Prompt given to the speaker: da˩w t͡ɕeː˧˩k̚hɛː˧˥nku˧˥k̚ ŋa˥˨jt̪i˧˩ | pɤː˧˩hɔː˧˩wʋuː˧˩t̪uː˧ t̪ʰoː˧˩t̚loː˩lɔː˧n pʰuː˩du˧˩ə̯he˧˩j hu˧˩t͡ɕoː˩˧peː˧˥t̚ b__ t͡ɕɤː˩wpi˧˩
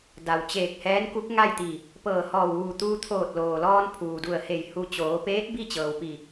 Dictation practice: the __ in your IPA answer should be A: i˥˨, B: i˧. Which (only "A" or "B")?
A